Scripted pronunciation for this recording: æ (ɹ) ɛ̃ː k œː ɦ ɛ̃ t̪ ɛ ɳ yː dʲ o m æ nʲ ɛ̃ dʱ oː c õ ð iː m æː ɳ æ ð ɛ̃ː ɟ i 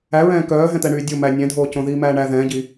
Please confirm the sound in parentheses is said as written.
yes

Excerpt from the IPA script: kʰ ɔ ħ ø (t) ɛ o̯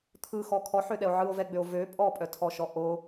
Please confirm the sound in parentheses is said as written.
no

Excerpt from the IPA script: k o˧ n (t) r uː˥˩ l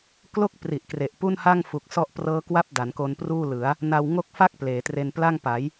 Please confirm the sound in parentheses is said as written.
no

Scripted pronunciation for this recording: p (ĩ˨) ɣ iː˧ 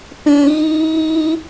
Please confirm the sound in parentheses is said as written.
yes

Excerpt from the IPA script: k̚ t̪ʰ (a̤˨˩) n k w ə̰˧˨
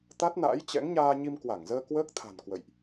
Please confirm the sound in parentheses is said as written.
yes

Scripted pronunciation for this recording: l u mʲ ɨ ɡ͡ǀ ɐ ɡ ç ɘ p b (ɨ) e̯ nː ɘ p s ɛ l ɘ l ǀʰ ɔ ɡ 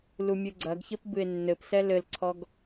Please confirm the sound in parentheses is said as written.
yes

